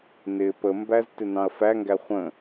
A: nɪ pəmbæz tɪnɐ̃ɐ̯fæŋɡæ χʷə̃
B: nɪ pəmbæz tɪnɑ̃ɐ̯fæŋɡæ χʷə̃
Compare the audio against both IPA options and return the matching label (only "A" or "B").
B